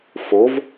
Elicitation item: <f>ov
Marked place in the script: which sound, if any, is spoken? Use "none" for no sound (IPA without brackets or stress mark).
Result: f